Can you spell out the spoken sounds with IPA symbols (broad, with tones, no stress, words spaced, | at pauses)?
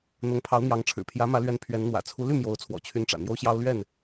n̪ʊ˨˦ŋ pʰɑ˨˦ʊ̯n̪jɑ˨˦ŋʈ͡ʂʰɻ̩˨˩ pʰjä˨˦mä˨˦lɥɛ˨˦n pʰɥɛ˨˦nn̪wä̰˨˩ t͡sʰu˨˦ ly˥˨ mjo˨˦ʊ̯t͡sʰwɔ̰˨˩t͡ɕʰy˨˦n ʈ͡ʂä̰˨˩n̪jo˦ʊ̯ɕjɑ˦ʊ̯ lɥɛ˥˨n